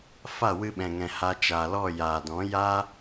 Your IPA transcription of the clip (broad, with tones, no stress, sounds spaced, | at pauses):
f a˦˨ w ɨ˧ ɓ ɛ̃˨ ŋ ɛ̃˨ h a˧ t͡ʃ a˨ l ɔ˦˨ j aː˨ d ɔ̃˨˦ j a˦